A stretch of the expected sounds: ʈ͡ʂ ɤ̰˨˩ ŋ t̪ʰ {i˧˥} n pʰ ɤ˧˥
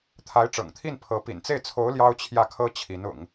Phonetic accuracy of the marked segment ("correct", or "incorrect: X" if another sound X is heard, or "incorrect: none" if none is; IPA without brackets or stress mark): incorrect: i˥˩